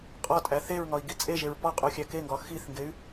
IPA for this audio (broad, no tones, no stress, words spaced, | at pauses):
qʼɒtʼæ θeɹŋɒi̯ɡi t͡sʼeʒeɹ pɒqʼuxʲæ keŋɡɒ xiθŋɡey̯